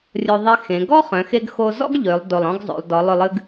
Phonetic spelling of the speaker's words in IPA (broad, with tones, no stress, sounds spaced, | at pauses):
rʲ o˧ ðˤ e˧ x ẽ˩˧ ɡ ɔ˥ χ œ̃˩˧ x e˧ ɡ x o˧ z ɔ̰˥ ɡ ʎ ø˩˧ lˠ d o˧˩ lˠ ɔ̃˥ ɡ zˤ o̰˩˧ lˠ d ɔ˩˧ lˠ ʏ˧˩ lˠ ɨ˧ ɡ